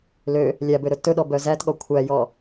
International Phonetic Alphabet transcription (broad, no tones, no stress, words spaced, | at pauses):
lø | lʲæbøɾɵ tɵɗɔ bœzætɠɔ kʷʰæjɔ